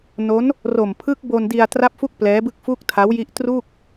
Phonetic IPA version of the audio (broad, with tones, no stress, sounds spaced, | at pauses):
n o˦˥ n | r o˨˩ m pʰ ɯ˦˥ k̚ b o˧ n d i˧ a̯ t r a˥˩ p̚ f u˥˩ k̚ p l ɛː˦˥ b ɯ˥˩ k̚ f u˥˩ k̚ tʰ a˦˥ w j i˦˥ ʔ t r uː˥˩ k̚